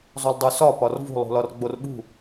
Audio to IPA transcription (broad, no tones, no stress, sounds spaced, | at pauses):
zˤ u lˠ dˤ u s ɒ p ɒ r v ṳ lˠ ṳ l ɒ r ɡ͡b o r ɓ ṳ